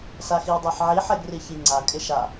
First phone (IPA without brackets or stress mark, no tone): s